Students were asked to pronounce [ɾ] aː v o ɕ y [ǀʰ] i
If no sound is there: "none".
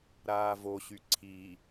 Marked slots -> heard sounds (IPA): ɾ, ǀʰ

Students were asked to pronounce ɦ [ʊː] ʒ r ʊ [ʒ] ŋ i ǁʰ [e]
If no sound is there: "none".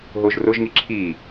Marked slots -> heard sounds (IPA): ʊː, ʒ, i

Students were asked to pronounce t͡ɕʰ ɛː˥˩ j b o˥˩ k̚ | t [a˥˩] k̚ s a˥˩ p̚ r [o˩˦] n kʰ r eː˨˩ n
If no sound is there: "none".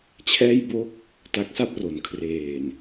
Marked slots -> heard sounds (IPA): a˦˥, o˩˦

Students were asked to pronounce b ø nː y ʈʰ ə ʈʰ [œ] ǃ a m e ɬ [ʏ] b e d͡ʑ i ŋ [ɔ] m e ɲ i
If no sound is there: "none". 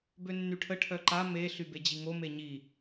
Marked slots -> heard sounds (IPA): œ, y, o

